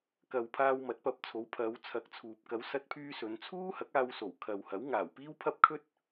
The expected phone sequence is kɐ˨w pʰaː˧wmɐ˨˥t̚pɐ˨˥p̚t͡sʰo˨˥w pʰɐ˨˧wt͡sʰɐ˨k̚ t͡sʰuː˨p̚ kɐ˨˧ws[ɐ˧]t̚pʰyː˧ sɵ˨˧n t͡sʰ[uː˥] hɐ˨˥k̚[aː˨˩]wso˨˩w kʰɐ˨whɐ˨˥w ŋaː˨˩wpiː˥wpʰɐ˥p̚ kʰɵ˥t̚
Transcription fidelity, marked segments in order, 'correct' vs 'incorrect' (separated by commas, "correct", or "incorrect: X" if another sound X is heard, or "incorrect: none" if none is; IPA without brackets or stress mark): correct, correct, incorrect: aː˧